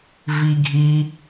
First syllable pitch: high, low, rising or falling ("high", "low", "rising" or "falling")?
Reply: low